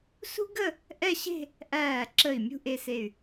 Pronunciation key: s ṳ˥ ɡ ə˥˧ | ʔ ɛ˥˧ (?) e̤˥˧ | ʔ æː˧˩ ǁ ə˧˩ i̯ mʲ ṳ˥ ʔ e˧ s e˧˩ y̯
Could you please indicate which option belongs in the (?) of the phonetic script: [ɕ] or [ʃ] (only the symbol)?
ɕ